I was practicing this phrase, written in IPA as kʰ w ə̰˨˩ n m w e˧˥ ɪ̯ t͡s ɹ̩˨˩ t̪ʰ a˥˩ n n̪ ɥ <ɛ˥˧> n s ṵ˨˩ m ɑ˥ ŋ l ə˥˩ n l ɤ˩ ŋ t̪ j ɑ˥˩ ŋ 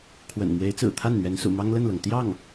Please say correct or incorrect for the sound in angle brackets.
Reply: incorrect: ɛ˧˥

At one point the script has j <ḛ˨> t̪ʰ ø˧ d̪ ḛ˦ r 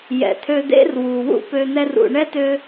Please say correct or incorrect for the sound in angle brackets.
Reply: incorrect: ɛ̰˨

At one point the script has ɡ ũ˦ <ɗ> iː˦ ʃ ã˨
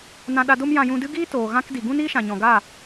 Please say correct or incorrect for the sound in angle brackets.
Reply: incorrect: n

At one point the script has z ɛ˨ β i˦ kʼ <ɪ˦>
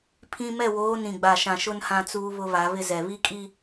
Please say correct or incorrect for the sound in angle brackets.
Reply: incorrect: i˦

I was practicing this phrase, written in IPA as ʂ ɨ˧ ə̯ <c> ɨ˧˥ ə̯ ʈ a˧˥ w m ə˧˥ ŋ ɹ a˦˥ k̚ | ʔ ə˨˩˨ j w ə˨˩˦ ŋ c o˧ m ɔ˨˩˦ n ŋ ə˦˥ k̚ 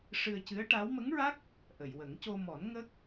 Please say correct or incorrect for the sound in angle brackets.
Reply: correct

